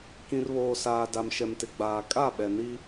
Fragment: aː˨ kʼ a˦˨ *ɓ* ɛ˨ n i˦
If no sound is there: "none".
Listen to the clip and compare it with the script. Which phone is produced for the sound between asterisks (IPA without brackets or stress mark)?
ɓ